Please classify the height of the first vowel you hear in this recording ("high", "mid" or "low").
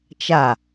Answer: low